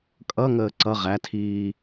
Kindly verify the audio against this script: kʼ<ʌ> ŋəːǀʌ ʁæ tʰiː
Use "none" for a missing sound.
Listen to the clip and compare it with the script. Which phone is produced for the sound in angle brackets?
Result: ʌ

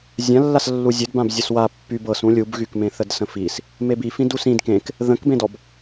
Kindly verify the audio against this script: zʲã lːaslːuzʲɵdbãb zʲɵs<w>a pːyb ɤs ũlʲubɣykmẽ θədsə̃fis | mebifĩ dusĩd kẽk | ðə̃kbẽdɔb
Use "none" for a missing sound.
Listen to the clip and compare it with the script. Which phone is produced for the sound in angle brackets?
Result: w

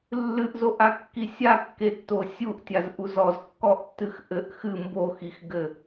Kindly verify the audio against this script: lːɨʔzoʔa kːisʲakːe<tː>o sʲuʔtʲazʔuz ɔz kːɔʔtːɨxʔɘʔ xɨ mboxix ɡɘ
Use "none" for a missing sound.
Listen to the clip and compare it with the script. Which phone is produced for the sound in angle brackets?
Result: tː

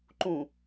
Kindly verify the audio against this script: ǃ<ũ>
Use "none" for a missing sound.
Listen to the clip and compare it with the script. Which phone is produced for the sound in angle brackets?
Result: ũ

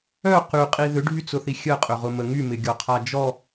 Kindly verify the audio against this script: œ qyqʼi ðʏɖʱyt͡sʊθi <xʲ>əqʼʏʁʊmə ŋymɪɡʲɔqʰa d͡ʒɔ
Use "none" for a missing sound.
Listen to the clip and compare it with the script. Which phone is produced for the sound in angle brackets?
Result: xʲ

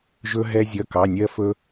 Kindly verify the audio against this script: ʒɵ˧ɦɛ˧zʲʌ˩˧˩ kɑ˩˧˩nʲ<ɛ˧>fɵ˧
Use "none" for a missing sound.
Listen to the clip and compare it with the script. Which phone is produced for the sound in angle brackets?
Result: ɜ˧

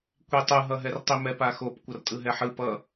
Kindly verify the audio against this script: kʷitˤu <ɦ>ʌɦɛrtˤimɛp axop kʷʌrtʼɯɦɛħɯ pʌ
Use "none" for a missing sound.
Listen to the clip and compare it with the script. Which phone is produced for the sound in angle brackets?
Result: ɦ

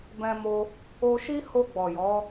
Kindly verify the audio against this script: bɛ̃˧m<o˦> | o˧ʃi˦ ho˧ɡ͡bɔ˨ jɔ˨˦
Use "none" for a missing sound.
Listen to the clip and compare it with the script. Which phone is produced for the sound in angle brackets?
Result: o˧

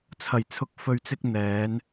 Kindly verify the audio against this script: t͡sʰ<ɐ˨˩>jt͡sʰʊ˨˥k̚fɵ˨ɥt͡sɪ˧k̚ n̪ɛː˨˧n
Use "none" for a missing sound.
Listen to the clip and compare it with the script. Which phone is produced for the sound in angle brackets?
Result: ɐ˨˩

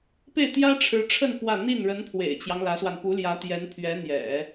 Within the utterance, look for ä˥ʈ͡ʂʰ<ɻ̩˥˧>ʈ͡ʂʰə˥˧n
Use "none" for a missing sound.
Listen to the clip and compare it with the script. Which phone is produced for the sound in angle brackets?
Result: ɻ̩˧˥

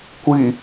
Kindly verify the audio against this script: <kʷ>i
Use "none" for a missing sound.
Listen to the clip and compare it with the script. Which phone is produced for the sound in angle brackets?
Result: kʷ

